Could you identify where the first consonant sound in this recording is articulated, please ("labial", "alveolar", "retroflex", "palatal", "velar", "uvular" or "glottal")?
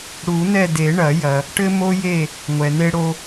retroflex